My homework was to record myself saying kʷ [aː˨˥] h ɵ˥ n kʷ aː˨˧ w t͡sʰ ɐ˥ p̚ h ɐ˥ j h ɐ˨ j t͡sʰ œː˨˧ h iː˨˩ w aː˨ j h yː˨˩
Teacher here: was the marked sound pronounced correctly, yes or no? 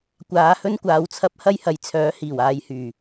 no